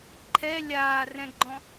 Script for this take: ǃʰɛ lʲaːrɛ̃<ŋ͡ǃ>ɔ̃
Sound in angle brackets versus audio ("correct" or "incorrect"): incorrect